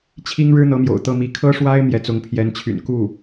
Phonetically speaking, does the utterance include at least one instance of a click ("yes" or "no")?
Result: no